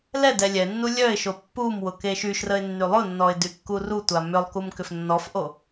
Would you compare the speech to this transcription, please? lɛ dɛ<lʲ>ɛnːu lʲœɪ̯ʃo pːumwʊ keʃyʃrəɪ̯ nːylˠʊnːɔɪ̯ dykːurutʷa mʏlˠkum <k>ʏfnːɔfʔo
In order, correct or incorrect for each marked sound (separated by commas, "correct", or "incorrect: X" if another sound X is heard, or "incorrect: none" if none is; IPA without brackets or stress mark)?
correct, correct